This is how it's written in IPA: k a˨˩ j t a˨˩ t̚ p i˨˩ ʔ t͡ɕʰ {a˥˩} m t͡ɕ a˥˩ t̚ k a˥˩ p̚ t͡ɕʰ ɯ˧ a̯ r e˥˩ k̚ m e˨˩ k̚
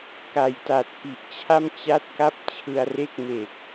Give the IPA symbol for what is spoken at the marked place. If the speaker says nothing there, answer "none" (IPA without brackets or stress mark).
a˥˩